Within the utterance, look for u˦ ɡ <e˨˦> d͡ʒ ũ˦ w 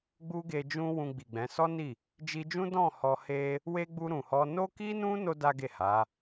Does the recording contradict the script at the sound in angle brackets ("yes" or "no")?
yes